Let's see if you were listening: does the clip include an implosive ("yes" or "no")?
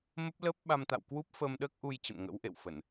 yes